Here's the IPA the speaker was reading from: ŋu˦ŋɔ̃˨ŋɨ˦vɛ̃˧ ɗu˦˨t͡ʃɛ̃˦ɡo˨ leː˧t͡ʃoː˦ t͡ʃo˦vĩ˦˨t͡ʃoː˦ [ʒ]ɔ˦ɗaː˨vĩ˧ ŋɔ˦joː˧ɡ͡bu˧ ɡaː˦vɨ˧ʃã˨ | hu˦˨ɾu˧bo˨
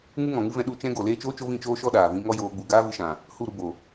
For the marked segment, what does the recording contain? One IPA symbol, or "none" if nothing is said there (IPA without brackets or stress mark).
ʃ